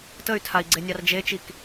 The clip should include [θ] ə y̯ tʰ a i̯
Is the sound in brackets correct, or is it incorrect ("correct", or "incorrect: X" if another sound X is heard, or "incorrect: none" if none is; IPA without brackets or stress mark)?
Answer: incorrect: t